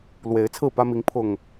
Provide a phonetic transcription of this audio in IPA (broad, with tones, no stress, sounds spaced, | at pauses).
l w e˨˦ ɪ̯ t͡sʰ ɹ̩˥˨ p ä˦ m i˨˦ ŋ pʰ ʊ˨˩ ŋ